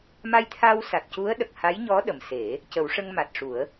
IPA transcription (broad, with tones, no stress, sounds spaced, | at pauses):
m a˧ j t̪ʰ a˧ w s a˨˩ t̚ c u˧˥ ə̯ ɗ ə˨˩ k̚ h a˧˥ j ɲ ɔ˧˥ ɗ ə˨˩ m s e˨˩˦ | c ə˨˩˦ w ʂ ə˧ ŋ m a˨˩ t̚ ʂ u˨˩˦ ə̯